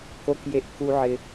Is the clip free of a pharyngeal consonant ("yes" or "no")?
no